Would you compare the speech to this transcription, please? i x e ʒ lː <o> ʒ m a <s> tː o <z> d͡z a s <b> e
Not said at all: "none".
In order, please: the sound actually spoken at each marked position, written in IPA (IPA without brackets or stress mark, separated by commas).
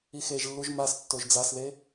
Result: u, s, ʒ, ð